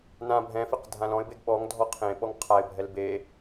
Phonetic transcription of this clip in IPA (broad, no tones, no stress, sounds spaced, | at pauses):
n ã bʱ ɛ̃ f e q dʱ ã l ɔ̃ ɪ̯ b e ɡ ɓ ɔ ŋ dʱ ɔ qʰ ẽ ɓ ɔ ŋ qʰ a ɪ̯ bʱ ɛ l b e